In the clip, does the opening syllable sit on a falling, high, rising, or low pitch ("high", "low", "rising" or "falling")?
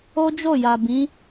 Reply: high